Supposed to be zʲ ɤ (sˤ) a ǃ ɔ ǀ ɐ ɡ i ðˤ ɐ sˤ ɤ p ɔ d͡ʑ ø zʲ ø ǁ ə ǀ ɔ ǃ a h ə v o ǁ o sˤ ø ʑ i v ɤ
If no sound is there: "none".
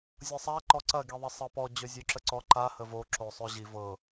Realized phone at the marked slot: sˤ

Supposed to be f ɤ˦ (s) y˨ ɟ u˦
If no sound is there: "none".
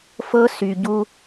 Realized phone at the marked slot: s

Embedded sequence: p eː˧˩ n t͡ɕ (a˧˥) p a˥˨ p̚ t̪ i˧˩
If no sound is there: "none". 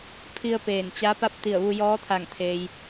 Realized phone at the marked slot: a˧˥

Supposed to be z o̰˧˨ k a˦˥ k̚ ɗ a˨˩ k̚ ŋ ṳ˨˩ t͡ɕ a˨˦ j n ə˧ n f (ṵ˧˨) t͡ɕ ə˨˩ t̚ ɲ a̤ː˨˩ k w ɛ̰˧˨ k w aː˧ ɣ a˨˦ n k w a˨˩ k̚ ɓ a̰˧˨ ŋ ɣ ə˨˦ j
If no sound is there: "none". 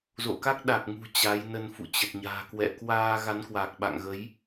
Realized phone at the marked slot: ṵ˧˨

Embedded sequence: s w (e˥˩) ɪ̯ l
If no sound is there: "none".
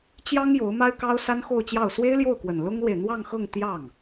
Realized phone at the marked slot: e˥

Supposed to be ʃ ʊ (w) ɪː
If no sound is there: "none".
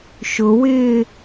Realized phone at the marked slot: w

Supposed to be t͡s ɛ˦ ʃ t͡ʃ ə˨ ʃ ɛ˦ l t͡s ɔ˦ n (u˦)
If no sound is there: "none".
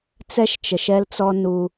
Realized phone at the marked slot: u˦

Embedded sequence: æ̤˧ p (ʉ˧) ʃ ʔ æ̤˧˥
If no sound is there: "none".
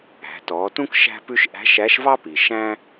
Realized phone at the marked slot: ʉ˧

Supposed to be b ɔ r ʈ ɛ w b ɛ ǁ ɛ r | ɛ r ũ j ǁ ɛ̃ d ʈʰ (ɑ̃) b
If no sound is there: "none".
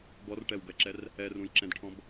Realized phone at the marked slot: ɔ̃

